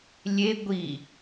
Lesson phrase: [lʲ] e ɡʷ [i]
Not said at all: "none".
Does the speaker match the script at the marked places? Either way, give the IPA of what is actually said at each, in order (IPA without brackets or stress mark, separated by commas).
lʲ, i